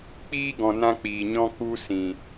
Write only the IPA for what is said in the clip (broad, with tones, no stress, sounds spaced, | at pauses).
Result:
k͡p iː˦ ɡ ɔ̃˨ n ã˦ k͡p iː˨ ɲ ɔ̃˦ k u˦ s ĩ˨